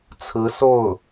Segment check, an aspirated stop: present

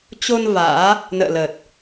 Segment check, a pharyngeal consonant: absent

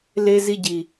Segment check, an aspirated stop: absent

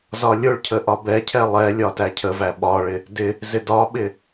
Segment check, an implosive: present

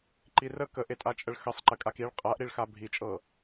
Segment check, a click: present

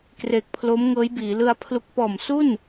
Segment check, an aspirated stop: present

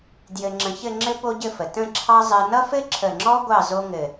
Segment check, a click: present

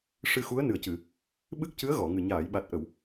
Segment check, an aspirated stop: absent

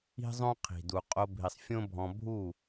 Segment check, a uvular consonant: present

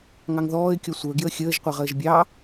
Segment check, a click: absent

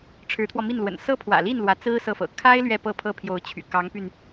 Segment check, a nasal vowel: absent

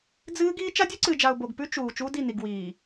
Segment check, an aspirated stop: absent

